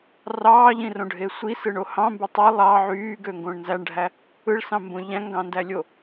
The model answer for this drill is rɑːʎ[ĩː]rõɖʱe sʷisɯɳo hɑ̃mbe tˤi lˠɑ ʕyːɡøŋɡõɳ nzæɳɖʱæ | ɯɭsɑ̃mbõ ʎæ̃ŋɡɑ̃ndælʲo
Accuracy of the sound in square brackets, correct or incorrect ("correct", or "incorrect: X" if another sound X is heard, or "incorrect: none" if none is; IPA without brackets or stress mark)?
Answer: incorrect: ĩ